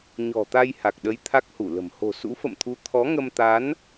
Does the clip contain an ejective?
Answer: no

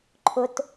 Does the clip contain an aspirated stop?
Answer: yes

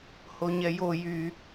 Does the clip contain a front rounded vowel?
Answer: yes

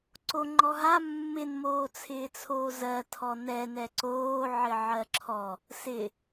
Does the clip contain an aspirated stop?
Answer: yes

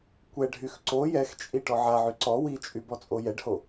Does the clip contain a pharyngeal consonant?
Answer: yes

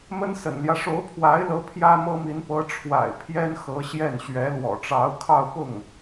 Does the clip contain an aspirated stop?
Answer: yes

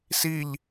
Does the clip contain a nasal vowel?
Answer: no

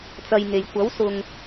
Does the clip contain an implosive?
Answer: no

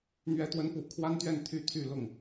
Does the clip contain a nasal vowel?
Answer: no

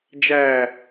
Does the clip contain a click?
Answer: no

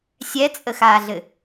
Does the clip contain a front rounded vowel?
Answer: no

